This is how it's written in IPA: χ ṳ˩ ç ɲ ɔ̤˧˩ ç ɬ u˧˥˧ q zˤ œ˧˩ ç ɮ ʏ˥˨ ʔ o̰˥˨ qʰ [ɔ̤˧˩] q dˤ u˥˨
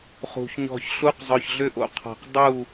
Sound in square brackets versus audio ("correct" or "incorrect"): correct